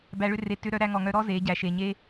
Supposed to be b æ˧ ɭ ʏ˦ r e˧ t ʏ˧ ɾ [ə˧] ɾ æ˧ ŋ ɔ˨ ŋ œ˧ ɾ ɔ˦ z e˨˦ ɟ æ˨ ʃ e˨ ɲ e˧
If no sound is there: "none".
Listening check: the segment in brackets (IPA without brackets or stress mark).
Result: œ˧